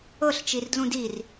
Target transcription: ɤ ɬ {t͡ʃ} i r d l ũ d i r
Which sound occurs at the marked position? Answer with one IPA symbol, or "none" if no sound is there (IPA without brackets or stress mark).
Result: t͡ʃ